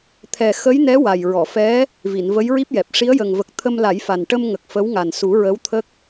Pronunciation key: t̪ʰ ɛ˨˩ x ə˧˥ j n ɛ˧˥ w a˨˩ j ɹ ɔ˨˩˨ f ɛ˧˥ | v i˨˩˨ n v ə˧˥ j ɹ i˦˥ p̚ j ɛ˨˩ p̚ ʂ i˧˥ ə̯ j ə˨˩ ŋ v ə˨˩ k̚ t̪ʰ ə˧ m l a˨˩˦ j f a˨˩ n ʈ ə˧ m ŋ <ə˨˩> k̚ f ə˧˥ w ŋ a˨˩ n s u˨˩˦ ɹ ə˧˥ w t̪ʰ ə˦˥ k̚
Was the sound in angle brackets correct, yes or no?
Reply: yes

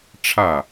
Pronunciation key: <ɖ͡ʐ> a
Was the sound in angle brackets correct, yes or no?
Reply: no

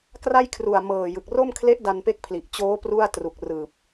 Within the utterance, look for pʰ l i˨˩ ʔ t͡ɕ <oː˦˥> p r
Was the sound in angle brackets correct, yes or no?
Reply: yes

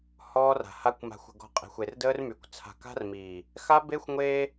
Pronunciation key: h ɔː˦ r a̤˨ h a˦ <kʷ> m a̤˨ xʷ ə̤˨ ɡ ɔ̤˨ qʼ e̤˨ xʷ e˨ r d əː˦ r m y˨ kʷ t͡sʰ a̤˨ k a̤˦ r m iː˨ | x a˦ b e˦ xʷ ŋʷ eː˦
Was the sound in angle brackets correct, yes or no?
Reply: yes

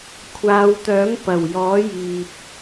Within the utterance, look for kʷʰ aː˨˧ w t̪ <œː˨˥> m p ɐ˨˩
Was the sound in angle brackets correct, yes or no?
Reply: yes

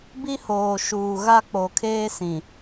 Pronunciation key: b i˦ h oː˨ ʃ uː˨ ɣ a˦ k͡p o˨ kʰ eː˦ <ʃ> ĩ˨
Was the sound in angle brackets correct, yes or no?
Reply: no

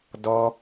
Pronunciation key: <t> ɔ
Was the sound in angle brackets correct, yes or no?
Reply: no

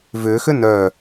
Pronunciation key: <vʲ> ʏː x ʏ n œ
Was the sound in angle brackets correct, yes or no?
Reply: no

